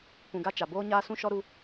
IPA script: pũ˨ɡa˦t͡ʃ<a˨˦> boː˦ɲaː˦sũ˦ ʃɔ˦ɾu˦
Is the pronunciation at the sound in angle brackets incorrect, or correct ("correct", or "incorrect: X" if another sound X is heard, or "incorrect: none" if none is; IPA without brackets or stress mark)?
incorrect: a˨